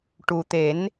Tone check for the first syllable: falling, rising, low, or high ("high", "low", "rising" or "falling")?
low